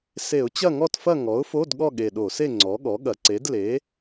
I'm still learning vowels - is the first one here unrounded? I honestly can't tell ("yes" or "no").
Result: yes